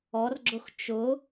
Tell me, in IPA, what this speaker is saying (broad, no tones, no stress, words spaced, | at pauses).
ɔrɡ͡ǁʊx t͡ʃʊ